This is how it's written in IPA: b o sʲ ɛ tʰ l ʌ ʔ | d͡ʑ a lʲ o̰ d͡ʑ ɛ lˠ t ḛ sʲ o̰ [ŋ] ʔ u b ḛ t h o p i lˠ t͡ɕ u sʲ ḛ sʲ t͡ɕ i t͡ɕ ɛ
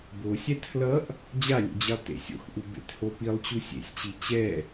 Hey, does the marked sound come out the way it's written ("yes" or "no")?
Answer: no